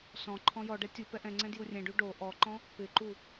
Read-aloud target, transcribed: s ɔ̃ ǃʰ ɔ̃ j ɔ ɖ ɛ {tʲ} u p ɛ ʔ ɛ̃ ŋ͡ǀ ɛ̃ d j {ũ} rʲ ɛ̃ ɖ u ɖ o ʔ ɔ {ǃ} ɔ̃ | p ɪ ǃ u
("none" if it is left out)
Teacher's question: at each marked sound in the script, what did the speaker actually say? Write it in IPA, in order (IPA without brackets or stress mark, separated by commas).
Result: tʲ, u, ǃ